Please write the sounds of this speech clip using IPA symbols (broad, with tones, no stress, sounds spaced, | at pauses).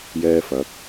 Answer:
j ɛː˧ f ɐ˨˥ k̚